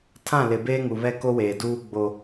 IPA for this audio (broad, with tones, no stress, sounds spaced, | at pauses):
tʰ ã˦˨ l ɪ˨ b eː˦ ŋ u˨ β ɛ˦ k o˦ w eː˨ d uː˦ ɡ͡b o˨